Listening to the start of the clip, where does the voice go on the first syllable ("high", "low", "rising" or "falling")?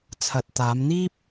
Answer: low